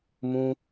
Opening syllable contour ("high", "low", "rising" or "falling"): high